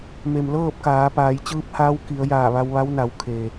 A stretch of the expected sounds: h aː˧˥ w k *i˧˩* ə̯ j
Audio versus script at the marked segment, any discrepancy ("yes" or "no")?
yes